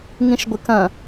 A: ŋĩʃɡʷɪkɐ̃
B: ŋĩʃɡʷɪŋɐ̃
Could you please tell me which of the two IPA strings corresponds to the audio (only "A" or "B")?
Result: A